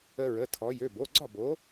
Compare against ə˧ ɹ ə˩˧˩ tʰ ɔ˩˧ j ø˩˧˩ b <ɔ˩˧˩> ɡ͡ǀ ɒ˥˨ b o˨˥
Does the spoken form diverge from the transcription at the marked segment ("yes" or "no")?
yes